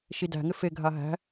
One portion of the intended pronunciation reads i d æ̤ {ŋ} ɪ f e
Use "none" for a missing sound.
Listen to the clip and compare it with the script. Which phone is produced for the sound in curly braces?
ŋ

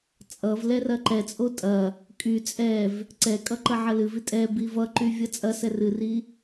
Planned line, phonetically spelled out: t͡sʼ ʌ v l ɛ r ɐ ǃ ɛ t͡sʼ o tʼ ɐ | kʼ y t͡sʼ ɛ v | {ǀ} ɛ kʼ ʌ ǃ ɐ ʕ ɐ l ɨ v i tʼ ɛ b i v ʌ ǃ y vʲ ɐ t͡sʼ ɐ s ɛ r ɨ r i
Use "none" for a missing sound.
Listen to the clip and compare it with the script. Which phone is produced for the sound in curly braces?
ǀ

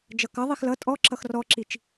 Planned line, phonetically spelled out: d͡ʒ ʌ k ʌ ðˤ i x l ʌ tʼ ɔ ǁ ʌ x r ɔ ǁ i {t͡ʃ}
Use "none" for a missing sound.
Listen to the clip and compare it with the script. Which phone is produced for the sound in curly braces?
t͡ʃ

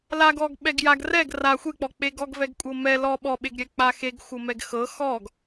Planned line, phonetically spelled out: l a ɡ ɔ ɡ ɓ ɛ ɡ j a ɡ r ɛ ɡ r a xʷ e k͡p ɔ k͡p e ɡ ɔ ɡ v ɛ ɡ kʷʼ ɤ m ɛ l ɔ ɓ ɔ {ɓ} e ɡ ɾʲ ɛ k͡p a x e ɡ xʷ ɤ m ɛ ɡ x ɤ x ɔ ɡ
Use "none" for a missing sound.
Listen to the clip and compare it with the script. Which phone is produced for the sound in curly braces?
ɓ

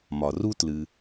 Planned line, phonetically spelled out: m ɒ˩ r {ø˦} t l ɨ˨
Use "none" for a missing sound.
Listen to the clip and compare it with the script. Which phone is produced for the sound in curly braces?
u˦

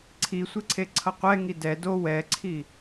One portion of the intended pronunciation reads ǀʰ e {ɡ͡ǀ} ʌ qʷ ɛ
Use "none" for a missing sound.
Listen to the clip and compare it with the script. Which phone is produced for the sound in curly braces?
ǀʰ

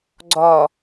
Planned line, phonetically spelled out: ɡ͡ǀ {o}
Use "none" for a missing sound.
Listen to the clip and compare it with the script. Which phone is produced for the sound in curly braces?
ɔ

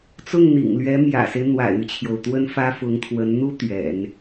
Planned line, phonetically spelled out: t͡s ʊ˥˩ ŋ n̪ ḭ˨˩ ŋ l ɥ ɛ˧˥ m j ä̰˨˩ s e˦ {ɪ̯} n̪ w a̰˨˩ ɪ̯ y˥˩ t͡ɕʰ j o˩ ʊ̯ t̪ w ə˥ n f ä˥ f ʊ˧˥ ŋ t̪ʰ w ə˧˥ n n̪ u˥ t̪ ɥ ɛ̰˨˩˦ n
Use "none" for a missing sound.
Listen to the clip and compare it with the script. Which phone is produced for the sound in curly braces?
ɪ̯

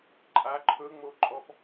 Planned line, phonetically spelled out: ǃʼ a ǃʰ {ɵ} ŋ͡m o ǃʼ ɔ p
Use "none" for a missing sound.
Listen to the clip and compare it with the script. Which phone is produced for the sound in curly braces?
ɵ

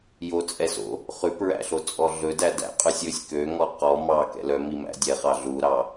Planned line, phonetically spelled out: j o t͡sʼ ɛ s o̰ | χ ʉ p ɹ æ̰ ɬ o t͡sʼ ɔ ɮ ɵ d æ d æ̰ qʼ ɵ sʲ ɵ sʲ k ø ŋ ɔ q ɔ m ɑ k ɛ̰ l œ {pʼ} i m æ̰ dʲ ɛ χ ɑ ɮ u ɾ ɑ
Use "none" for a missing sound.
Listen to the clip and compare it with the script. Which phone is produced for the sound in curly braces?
m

